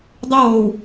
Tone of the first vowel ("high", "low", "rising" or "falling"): falling